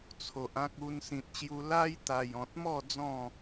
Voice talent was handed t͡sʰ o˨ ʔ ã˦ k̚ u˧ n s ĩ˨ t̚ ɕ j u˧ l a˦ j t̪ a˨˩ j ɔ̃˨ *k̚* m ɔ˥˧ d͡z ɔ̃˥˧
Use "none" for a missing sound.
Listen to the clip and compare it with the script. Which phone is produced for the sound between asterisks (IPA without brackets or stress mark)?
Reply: t̚